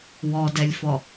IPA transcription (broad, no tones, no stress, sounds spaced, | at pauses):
w ɔ d ɛ lʲ f ɔ